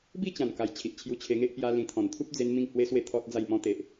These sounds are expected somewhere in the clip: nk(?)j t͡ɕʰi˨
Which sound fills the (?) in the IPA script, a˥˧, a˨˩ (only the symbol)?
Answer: a˨˩